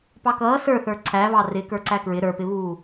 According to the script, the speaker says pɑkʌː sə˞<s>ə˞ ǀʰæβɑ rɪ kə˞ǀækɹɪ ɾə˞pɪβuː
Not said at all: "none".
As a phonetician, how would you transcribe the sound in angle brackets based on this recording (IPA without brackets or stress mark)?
θ